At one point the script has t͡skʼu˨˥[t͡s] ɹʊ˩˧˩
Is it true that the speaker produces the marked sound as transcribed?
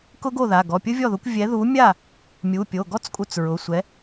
yes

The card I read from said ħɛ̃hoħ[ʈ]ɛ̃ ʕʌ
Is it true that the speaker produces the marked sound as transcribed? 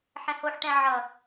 yes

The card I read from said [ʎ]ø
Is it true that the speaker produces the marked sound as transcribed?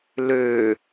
no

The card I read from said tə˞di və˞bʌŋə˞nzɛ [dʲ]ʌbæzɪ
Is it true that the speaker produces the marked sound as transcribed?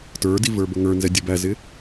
yes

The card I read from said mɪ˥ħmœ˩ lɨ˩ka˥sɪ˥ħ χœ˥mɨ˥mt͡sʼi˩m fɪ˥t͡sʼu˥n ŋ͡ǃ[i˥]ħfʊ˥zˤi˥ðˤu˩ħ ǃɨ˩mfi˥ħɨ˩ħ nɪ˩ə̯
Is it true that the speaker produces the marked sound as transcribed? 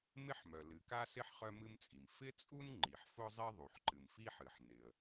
no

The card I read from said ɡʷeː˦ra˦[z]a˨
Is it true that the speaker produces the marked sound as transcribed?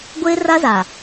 yes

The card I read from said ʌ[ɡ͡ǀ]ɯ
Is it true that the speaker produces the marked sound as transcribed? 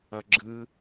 no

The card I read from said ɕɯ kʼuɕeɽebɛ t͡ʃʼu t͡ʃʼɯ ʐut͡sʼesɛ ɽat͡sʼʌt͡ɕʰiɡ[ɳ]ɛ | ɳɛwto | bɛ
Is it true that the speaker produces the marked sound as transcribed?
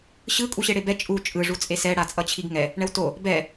no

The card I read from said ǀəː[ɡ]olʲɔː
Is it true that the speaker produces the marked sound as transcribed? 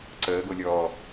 yes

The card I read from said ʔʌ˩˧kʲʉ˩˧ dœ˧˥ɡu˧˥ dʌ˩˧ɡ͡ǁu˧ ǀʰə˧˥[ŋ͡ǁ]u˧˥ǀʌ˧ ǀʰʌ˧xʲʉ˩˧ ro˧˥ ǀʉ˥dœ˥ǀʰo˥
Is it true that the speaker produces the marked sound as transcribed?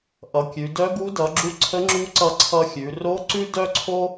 yes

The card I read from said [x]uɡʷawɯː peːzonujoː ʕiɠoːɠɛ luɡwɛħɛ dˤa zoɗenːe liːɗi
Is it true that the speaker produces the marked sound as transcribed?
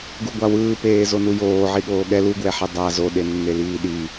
no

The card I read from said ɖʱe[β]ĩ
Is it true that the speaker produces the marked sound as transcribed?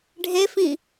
no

